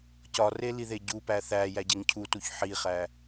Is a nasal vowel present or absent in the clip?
absent